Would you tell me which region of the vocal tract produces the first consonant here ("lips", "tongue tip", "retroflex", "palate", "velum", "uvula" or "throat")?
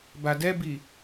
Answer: lips